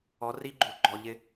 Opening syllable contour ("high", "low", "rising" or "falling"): rising